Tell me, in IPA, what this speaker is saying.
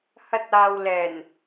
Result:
hɐ˧t̚ aː˨wlɛː˨˩n

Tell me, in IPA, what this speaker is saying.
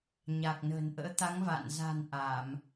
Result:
ɲa˨˩k̚nə̤ː˨˩nʔə̰ː˧˥ t̪a˨˦ŋ va̰˧˨n za̤˨˩n ʔa˧˩˨m

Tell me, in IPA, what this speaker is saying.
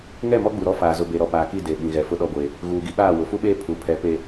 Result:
ŋɛ˦˨mɔ˦ɡ͡bu˨ɾɔ˦ faː˨zʊ˨be˨ ɾɔ˨ paː˨ki˦˨ de˨ɓĩ˨ɣɛ˨ fʊ˦ɗɔ˦ɡʷeː˨ | ɣuː˨ɡi˦ɓaː˦˨wʊ˨ fu˦ɓeː˦ pʰu˨pʰɛ˨pe˨

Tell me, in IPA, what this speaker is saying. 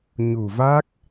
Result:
ɲu˨˩va˦˥k̚

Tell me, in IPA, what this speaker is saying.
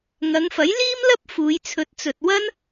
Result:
ŋɐ˨˧ŋfɐ˨˥j liː˥mlɐ˥p̚ fuː˨˧j t͡sʰɵ˨˥t̚t͡sɵ˨t̚ wɐ˥n

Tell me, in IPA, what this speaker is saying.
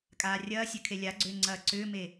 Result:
kʼaːrʲɐːsʲœ kʰelʲaɡ͡ǀʏː ŋ͡ǀɐːǀʏːme

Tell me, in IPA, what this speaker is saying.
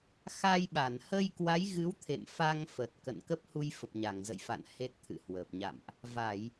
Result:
xa˧jɓa˧˩n hə˧j kwa˨˦jɣɨ˨˦wt̪ʰḛ˧˨m fa˧ŋfə˨˩t̚ kə̰˧˨nkə˦˥p̚hu˧j fə˨˩p̚ɲa˧˩ŋzə̰˧˨jfa̰˧˨n he˦˥t̚t̪ʰɨ̰˧˨hwəː˨˩p̚ ɲa̰˧˨mʔ | va˧˩˨j

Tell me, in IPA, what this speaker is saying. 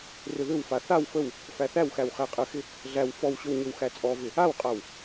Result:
rʏðʏwfa θaw fəw | fæθæwxæw χæqʼəxɪ | ɮæw fɔwɕʏw ɲʏwxæt͡sʼɔvɪ | awqʼaw

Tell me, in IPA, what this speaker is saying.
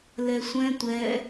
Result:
lɛsʷɛ̃ tʷɛ

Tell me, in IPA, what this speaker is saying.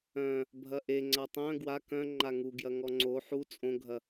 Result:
œ̃ | bʱɐʔe ŋ͡ǀatˤœ̃ ɡwa kœ̃ ŋ͡ǃaŋu ɡjɐŋɔŋ͡ǀo ħu t͡sʼõɡʱɐ

